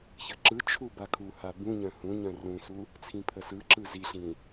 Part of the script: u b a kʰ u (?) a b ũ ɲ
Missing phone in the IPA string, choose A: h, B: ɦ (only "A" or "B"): A